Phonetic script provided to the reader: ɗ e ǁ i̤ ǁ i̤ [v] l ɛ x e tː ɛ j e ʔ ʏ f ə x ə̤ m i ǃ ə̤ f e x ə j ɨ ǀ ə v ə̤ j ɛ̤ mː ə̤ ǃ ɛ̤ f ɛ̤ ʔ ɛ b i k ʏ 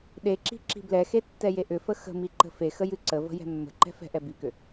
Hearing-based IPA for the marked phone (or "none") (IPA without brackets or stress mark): b